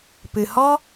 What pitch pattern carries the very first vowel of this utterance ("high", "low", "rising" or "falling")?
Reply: low